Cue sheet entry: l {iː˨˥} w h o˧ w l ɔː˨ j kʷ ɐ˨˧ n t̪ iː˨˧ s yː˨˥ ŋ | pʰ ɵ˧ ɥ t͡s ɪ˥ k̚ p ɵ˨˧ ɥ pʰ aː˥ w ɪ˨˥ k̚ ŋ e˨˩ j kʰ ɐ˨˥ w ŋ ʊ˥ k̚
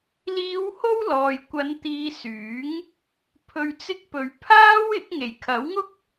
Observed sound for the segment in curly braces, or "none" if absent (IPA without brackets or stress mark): iː˨˧